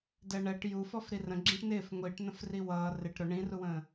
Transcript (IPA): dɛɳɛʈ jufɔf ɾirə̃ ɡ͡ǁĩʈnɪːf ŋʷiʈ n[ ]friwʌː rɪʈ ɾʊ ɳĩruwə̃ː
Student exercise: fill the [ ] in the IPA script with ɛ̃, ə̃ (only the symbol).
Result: ə̃